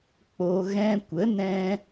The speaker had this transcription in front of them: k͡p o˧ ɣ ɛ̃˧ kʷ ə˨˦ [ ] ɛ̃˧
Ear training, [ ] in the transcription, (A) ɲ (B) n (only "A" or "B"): B